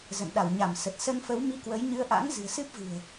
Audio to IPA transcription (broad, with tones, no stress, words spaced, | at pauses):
zə̰˧˨nɗa˧˩wɲa˧˩m sə˨˩t̚ sə˧nfə˨˦w mi˧kwə˨˦j ɲɨ˧ə̯ʔa̰˧˥ŋ zɨ̤˨˩ə̯sɨ˦˥p̚ vɨ̤˨˩ə̯